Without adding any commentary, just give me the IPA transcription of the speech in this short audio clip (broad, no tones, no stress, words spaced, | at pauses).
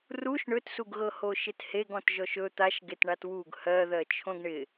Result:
ruʃ ɳɵtsuɡɣɤ hoʃɪtheɡɔ̃t ʒɔʃɵ t̪aʃ ɡetɳatwuɡ hɜðɜ t͡ʃʰõɡɳɪ